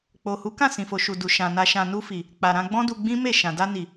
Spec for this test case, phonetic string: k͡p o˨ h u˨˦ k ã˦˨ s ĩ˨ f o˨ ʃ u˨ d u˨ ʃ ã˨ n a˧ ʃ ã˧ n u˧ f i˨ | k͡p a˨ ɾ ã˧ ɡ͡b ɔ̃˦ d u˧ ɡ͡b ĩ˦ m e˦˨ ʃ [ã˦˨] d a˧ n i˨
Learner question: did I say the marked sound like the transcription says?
no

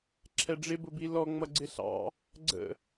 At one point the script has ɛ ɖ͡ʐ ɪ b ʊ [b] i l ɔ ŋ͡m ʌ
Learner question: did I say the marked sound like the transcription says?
yes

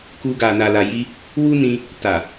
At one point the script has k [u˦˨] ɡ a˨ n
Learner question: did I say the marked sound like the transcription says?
no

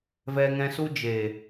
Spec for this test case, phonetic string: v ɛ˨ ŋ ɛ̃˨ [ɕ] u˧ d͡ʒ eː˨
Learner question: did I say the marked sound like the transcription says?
no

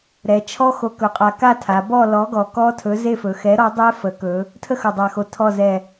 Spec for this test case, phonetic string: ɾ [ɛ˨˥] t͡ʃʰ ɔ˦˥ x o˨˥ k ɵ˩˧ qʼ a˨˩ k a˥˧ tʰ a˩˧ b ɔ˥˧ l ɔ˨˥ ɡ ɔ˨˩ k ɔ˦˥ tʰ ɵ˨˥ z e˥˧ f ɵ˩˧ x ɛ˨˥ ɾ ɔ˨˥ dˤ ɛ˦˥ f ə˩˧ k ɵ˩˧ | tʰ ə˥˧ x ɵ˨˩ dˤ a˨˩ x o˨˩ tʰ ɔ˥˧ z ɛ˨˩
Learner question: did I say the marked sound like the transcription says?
no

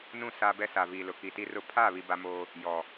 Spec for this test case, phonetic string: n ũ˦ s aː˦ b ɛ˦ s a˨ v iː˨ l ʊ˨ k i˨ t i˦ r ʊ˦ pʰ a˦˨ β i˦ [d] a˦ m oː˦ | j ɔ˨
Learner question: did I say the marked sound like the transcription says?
no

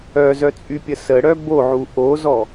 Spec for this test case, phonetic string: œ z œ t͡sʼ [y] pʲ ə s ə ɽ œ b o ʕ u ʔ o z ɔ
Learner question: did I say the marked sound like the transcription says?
yes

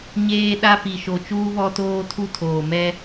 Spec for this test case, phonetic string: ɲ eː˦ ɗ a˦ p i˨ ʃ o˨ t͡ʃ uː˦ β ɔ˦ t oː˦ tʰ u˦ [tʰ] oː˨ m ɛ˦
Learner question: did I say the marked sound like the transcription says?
yes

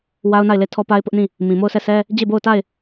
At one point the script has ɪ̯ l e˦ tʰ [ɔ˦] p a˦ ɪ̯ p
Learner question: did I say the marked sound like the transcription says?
yes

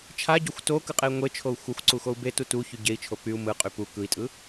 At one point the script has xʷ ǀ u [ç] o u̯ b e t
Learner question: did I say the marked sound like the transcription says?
no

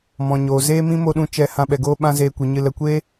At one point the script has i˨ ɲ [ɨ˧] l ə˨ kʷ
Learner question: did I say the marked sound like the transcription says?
yes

